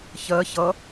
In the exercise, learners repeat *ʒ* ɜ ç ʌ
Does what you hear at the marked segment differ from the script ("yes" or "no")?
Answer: yes